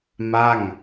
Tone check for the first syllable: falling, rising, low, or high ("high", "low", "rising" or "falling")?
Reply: falling